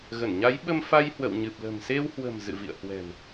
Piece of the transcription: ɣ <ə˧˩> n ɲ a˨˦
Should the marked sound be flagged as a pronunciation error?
no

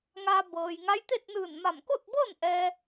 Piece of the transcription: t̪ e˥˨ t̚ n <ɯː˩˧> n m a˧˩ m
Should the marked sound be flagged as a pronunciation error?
yes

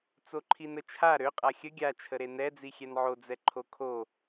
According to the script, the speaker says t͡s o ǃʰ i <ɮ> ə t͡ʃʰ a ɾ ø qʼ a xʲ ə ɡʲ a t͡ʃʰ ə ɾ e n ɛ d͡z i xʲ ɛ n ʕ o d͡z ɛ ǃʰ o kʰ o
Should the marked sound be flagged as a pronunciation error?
yes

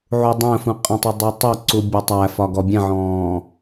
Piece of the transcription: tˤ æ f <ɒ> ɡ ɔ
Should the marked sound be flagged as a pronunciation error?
no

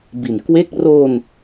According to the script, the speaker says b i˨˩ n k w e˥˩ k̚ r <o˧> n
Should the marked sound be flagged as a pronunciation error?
no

